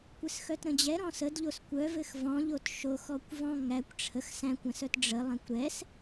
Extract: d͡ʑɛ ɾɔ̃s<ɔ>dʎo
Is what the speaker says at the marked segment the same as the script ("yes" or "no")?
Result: no